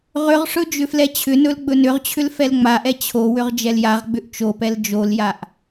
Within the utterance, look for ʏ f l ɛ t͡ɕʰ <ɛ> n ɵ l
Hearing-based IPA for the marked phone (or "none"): ʏ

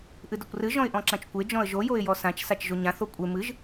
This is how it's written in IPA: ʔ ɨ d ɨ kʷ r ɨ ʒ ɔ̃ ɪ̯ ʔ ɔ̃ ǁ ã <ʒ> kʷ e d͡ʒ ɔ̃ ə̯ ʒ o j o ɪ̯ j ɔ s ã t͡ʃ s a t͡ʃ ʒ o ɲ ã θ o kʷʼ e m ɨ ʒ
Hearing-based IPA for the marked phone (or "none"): t͡ʃ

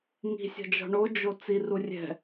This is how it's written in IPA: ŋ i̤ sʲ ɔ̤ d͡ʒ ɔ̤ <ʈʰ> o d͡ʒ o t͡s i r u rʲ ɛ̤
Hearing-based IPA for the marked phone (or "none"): ɳ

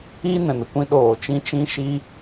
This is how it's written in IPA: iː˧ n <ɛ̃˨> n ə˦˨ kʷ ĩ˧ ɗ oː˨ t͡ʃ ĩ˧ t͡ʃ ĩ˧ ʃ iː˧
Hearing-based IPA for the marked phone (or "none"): ɛ̃˨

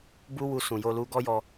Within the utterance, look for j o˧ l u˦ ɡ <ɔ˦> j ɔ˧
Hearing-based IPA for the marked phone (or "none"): ɔ˦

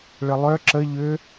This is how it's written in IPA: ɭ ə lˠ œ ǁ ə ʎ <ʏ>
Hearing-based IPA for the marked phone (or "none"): ʏ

